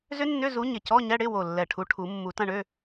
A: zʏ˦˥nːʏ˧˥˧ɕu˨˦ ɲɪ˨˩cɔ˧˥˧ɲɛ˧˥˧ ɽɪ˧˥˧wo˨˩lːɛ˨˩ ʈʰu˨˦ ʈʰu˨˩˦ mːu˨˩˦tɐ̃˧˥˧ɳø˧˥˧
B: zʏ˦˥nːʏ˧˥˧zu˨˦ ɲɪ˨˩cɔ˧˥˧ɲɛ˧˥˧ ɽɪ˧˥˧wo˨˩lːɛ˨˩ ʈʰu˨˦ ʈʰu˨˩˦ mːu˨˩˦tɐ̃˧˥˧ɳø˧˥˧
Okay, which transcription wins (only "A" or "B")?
B